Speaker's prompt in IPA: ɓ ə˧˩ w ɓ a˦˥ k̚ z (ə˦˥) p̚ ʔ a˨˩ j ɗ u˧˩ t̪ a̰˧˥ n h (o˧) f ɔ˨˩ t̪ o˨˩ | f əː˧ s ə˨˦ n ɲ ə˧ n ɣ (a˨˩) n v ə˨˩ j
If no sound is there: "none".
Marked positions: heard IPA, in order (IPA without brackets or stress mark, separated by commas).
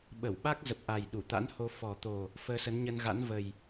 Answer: ə˨˩, o˧, a̰˧˥